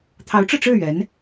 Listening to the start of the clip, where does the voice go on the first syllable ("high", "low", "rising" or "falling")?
rising